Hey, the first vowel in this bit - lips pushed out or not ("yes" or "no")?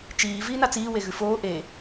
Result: no